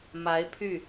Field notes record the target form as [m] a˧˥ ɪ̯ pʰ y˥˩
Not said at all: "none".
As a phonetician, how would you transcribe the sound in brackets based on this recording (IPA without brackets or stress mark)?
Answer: m